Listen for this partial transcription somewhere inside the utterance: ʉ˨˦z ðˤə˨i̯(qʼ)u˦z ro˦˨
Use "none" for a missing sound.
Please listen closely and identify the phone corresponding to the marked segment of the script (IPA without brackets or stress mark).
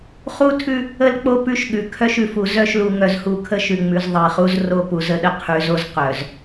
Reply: χ